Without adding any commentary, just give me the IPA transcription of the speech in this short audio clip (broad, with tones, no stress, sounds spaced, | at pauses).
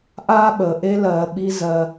ʔ aː˦ ɓ əː˨ ʔ e˦ l ɜː˨ ɓ i˦ z ɜ˨